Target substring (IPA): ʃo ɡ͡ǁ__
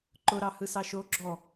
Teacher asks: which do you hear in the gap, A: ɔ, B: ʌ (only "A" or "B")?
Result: A